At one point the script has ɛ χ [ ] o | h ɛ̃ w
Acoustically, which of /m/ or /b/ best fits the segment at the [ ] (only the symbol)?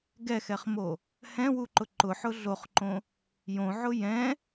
m